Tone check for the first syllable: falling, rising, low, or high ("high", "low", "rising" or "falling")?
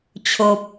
low